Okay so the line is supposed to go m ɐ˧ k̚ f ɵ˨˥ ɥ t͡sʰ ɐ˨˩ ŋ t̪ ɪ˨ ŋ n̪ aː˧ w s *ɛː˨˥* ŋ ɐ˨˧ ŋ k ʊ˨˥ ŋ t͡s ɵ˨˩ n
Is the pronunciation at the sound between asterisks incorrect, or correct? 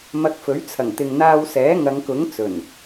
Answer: correct